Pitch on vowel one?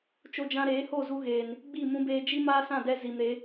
high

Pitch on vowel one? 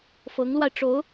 rising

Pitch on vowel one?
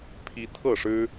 high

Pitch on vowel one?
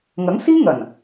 rising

